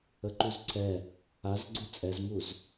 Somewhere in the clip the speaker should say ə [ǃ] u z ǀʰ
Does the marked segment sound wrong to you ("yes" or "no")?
no